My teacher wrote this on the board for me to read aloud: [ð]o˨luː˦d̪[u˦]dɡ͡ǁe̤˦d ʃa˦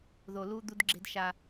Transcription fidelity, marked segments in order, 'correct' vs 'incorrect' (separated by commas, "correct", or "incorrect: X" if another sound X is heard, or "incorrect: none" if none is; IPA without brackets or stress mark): correct, correct